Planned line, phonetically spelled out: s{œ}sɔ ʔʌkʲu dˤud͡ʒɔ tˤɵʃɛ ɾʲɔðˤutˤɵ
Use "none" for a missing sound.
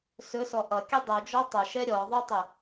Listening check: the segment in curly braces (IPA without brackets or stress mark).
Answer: ɵ